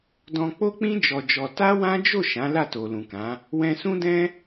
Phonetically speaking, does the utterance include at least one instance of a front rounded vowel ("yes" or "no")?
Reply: no